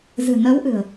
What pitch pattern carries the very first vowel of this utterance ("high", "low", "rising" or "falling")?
low